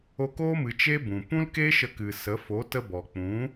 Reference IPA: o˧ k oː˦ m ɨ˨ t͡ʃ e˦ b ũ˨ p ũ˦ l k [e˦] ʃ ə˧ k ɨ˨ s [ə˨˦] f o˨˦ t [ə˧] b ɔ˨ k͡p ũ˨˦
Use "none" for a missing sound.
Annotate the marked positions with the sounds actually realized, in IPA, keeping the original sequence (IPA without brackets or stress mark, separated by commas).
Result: e˦, ə˨˦, ə˧